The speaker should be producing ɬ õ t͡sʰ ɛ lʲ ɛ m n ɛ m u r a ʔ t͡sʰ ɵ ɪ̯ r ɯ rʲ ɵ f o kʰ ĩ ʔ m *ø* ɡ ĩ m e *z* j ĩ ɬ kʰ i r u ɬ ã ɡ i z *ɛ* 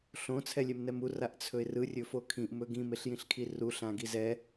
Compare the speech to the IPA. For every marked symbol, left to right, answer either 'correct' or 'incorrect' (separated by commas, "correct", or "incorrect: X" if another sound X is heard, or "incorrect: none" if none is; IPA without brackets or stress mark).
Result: incorrect: ɵ, incorrect: ɬ, correct